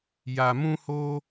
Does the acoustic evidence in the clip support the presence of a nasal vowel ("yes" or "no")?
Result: yes